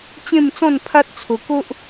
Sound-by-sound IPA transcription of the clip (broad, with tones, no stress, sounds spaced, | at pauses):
t͡ɕ ẽ˥˧ m t͡s ɔ̃˥˧ n pʰ a˦ t̚ t͡sʰ o˧ k o˦ ʔ